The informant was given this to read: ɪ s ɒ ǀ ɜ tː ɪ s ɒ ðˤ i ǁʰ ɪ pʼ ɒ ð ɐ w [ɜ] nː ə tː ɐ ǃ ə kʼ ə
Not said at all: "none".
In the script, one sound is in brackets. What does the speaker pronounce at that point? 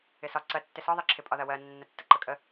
ɜ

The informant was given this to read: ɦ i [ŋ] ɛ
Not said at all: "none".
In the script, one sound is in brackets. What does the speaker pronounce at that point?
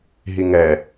ŋ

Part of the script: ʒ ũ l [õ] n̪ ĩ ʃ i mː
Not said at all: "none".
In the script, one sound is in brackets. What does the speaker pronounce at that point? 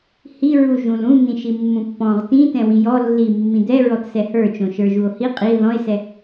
ũ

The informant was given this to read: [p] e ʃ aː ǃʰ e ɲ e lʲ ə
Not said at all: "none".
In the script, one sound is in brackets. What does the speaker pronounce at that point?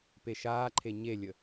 p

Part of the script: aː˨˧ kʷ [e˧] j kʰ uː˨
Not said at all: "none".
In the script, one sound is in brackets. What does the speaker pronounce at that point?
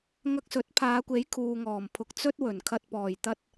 e˨˥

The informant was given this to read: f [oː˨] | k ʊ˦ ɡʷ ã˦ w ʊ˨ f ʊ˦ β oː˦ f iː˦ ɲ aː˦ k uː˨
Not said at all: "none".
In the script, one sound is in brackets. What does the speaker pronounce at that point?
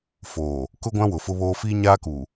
oː˨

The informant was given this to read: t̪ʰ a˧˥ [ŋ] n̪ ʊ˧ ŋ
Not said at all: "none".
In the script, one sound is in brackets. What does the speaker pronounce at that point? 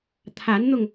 n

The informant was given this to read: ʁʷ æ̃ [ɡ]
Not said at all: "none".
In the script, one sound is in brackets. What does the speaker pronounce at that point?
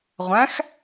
x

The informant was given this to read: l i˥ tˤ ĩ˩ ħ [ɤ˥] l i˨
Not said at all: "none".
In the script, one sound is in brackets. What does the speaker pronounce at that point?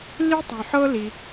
ɤ˥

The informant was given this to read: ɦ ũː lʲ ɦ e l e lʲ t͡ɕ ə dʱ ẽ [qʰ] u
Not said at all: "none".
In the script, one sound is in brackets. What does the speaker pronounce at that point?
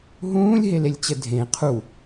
qʰ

